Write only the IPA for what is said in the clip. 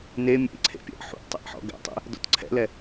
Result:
ne mʲḛǀʰḛpʲɛ̰ʔ ħṵʔtˤɛ̰ʔħɔ̰ ɡɛ̰tˤḛ | dɔ̰tǀʰɛ̰lɛ

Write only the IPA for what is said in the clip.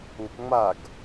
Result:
upŋ͡maɡ

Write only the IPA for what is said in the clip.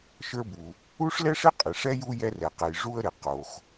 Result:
ʃə˞˦bu˩ | u˥ʂlɛ˥ʂɪ˥ qʼɪ˩ʂɛ˥ju˦ jɛ˦rɛ˩qɛ˩j ʐu˦ə̯ɾɪ˩ qo˩x

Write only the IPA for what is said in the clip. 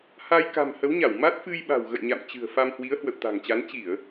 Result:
ha˧j ka̤˨˩m hə˨˦wɲa˧˩wma˦˥t̚ fɨ˧jɓa̤˨˩w ɣə̰˧˨jɲa̰˧˨m t͡ɕɨ̤˨˩ə̯ fa˧mhwi˨˦ə̯ hwə̰˧˨wt̪a̤˨˩ŋt͡ɕa˨˦n t͡ɕi˧˩˨ə̯

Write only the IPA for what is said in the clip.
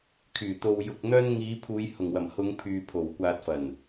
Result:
kʰyː˨˩t̪o˨w jʊ˨k̚n̪œː˧n ŋiː˨˧ pʰuː˨˧jhʊ˨˩ŋwɐ˨˩m hʊ˨˧ŋ pʰyː˨ pʰo˨˩wkʷaː˨t̚fɐ˨˩n

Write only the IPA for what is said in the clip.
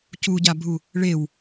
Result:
cuɟabʱu | ɭew

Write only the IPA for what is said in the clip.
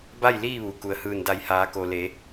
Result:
ba˥˨j liː˥˨ ʋu˩ku˩ə̯hɯː˧˩n da˧˩jhaː˩˧ko˩ le˩˧

